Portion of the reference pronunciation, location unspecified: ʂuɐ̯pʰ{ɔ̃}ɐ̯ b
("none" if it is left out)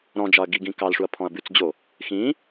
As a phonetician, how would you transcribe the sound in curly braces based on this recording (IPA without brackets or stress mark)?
ɔ̃